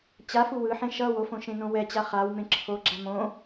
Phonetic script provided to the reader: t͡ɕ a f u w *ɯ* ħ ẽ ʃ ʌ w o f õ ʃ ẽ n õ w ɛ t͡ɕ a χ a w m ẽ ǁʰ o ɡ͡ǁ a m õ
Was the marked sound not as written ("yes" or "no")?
no